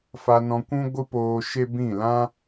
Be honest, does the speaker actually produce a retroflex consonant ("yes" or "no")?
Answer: no